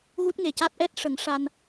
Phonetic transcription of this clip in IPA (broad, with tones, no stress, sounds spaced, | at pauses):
ɣ u˦˥ t̚ ŋ e˨˩ c a˦˥ t̚ ʔ ɛ˦˥ t̚ ʂ ə˨˩˦ ŋ ʂ a˧ n